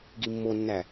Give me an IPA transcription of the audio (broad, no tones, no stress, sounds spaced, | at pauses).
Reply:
ɡ i mː o nː æ